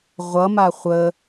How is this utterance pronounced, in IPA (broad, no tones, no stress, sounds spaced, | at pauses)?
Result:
ʁʷ ʌ m a χʷ ə